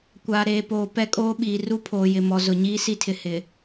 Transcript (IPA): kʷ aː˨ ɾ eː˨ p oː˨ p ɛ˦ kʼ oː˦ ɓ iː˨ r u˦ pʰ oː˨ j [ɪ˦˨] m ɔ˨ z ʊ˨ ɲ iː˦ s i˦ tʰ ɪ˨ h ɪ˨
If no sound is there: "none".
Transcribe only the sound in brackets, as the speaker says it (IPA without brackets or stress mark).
ɪ˨